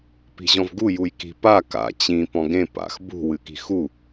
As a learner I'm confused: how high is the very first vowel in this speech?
high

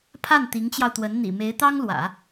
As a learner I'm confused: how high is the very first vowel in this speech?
low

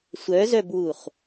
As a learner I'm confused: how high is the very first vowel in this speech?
mid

